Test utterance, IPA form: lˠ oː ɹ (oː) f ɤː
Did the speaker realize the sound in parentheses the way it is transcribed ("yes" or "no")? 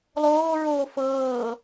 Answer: yes